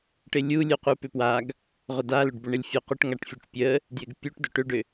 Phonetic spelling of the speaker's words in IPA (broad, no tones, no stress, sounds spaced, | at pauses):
ʈ ɪ lʲ u lʲ u q u p ʏ p w a ɡ | ʁ ʊ d a l ʏ ɖ b ʏ ɳ ɪ lʲ fʲ ʊ q ʏ ʈ ŋ a ʈ fʲ u ʈ pʲ ə | d j ɪ ɡ pʲ u ʈ d ʏ ʈ ʏ ɖ ʏ